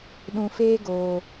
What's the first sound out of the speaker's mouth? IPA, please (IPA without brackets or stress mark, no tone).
ɗ